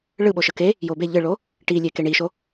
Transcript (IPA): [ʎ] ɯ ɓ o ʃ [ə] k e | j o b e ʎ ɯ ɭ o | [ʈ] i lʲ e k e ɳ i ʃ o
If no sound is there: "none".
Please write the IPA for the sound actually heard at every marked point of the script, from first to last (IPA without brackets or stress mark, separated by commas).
ɭ, ə, ʈ